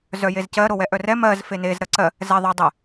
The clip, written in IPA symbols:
zœjezcɜ ɾowɛʔœrɛ mɜz fenez ɾɜǀɜ | zɛ ðˤo dˤɛ

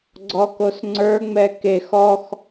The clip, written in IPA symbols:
ɡ͡ǀɔkosŋ͡ǀə˞ŋ͡mɛ kex ɔx

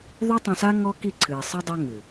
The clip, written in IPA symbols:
ðˤu˦tˤõ˧sa˦ ŋɔ˦ki˦˨ǀʰɨː˨ sˤɯ˦dˤa˦ ŋɨː˨

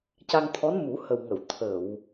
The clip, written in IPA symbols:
ca˧ŋt̪ʰɔ˧˥n mu˨˩˦hə˨˩wŋə˨˩˨w t̪ʰə˨˩˨w

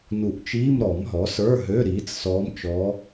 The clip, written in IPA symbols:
nu˨˩˦ʔt͡ʃiː˧˥˧m ɾɔ˨˩˦mɦɔ˩˥sə˞˧˥˧ɦø˧˥˧ ɾiː˩˥t͡ssɔː˧˥mt͡ʃɔː˧˥

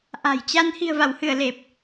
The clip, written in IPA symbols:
ʔa̤˨˩jt͡ɕa˧n hi̤˨˩ə̯va˧˩whɨ˧˩ə̯ le˨˩p̚

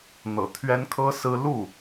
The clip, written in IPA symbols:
n̪ɤ̰˨˩t̪ʰɥɛ˥n kʰɤ˥sɹ̩˥ lu˥˩

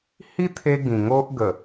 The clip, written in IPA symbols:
hi˦t̪ʰe˧ ɡĩ˨˩ ŋo˦ʔ ɡə˨˩

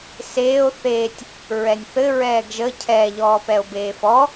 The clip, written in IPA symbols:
seːo̯ θeːtʲ | ɹɛnʲθɘ ɹɛːɡʒə cʰɛ ʎɔːpɛo̯beːfɔ

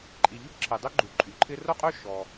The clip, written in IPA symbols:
ǃʼi˩ ʎʏ˥pǁʰi˩dˤʏ˥ ɡ͡ǃu˩ǃʼy˩ǃʰɪ˥ ro˥qʼø˥ ʃɔ˩

